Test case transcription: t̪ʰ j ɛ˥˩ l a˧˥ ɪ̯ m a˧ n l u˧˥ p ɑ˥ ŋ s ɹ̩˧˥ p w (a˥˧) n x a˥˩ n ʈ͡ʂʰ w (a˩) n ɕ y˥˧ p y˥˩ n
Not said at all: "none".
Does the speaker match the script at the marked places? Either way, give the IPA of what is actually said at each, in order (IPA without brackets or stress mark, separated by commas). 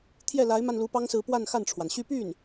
a˥˧, a˩